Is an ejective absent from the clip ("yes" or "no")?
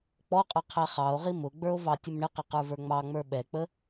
no